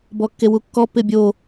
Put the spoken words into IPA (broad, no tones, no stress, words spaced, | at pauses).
bɔkːewukːɔ pɪbʲo